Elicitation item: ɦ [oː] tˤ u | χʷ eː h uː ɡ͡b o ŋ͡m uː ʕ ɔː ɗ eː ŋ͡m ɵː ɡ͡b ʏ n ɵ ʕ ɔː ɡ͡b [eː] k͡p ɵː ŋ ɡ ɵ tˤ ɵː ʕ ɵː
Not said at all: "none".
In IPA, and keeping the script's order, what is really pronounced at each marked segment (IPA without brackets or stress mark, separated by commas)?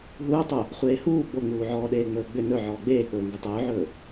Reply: uː, eː